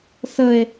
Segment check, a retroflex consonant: absent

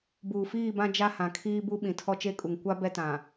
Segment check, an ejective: present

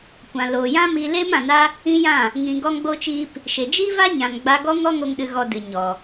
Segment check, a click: absent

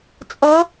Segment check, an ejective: present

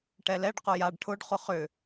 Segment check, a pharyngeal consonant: absent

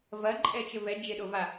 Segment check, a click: present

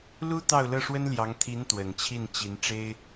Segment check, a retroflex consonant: present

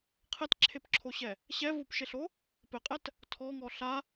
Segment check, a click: present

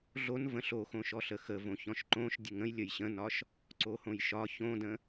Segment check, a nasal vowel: present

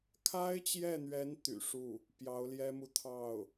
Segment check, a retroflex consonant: present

